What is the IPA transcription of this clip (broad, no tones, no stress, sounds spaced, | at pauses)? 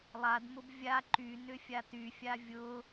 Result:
lˠ a d m ʊ b vʲ a ǃ y n ʏ fʲ a t y fʲ a vʲ ʊ